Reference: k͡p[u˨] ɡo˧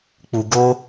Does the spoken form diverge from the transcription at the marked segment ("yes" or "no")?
no